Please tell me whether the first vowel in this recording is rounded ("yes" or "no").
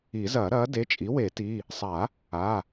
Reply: no